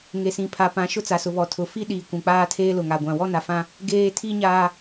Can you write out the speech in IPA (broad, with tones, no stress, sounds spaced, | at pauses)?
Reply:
ŋ e˨ s ĩ˨ pʰ a˨ p ã˨˦ ʃ ʊ˦ t͡s a˨ s ʊ˨ β ɔ˨ tʰ ʊ˨ f i˦ ɗ iː˨ kʷ ũ˨ k͡p aː˦ tʰ eː˦ l ʊ˨ ŋ a˨ ɡʷ ã˨ w ɔ˦ n a˨ f ã˦ | ɡ eː˦ tʰ iː˦ ɲ aː˦